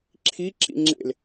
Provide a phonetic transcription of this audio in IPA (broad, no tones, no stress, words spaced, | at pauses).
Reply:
ǁʰi ǁḭŋ͡ǁḛl